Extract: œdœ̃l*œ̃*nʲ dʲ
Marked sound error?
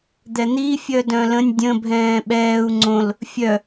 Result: yes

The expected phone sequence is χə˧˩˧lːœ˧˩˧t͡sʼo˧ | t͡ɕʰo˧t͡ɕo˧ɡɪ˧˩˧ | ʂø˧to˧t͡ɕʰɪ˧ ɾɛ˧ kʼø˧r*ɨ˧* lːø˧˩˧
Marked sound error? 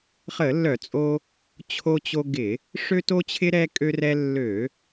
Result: yes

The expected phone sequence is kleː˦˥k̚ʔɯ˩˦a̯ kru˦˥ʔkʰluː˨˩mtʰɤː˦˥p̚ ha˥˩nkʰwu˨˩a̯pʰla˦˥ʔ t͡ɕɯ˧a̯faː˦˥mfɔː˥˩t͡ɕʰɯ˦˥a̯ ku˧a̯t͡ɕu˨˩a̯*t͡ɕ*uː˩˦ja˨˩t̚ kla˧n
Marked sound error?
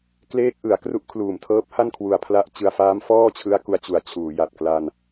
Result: yes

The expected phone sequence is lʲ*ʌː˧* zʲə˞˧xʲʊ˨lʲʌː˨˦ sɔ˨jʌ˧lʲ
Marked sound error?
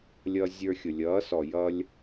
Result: no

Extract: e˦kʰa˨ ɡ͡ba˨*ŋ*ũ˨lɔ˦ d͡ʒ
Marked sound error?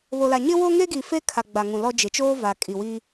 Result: no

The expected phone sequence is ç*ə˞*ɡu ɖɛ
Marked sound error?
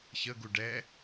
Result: yes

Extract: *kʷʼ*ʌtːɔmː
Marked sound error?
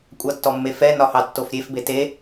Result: no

